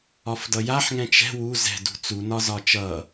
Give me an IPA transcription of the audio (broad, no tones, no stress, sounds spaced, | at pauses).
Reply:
ɒ f d ʌ j a ħ ŋ ɛ̃ t͡ʃ ɛ̤ w u z ɛ̤ d ṳ t͡s u n ɒ z ɒ t͡ʃ ʌ